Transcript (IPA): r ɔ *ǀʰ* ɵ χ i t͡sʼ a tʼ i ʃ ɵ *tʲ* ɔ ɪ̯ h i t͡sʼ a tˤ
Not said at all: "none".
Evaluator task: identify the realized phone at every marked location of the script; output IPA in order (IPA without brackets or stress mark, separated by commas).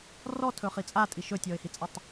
tʰ, tʲ